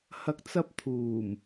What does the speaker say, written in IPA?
h ɐ˨ k̚ t͡s ɐ˧ p̚ t̪ʰ uː˨˩ m

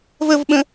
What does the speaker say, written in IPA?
v ə v ɓ ə̃

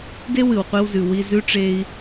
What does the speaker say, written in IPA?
d e˦ w ɨ˨ w qʷ i˧ w z ʉ˨ w i˧ z ʉ˧ ʈ͡ʂ e˧ i̯

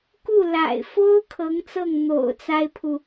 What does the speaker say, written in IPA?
k u˥˩ l a̰˨˩ ɪ̯ f o˥ ʊ̯ kʰ ɤ˧˥ ŋ t͡s ɤ˥˩ ŋ n̪ o̰˨˩ ʊ̯ t͡s a˥ ɪ̯ pʰ u˨

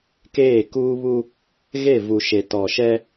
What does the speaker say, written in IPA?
k eː˦˨ k uː˦ β u˦ | ɣ e˦˨ v u˨ ʃ e˨ t ɔ˨ ʃ ɛ˦

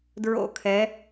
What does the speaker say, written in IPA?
d ɹ o̰˧˩˧ kʰ ɛ˩˧

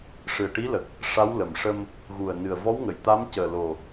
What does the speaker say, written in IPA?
ʂ ɨ˨˩ ə̯ ʈ i˧˥ l ə˨˩ k̚ | ʂ a˧˥ w l ə˨˩ m ʂ ə˧ m | ɣ u˨˩ ə̯ n ɨ˨˩ ə̯ v ɔ˧˥ w ŋ ə˨˩˨ j t̪ a˧˥ m c əː˨˩ l o˨˩

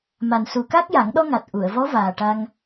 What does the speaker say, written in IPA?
m a˨˩ n s u˨˩ k a˦˥ k̚ j a˨˩˦ ŋ ɗ ɔ˧ ŋ a˨˩ t̚ ʔ u˨˩˨ ə̯ v ɔ˧˥ v aː˨˩ ʈ a˧ ŋ

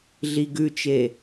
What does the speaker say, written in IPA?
ɮ i ɡ ʉ t͡ʃ e

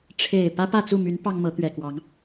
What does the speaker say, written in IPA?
ʈ͡ʂʰ e˨˩ ɪ̯ p ä˦ p ä˥˨ t͡s u˥˨ m y˨˦ n p ɑ˦ ŋ m ɤ˨˦ t̪ ɥ ɛ˨˩ k w ɑ˨˦ ŋ

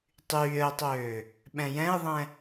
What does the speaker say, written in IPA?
tˤ yː ə̯ tˤ øː | ɓ ɛ̃ j ɛ̃ ɪ̯ ðˤ ɛ̃

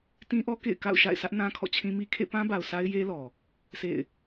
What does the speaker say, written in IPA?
t ĩ˦ ʔ ɔ˦ k ḛ˦˨ ɪ̯ k a̰˦˨ ʊ̯ ʃ a̰˦˨ ɪ̯ s ä˦ ʔ n ã˦ kʰ ɔ̰˦˨ t͡ɕʰ ĩ˦ m i˦ kʰ ḛ˦˨ p ã˦ b a˨ ʊ̯ sʰ a˦ ɪ̯ j e˦ l ɔ˨ | sʰ ḛ˦˨ ɪ̯

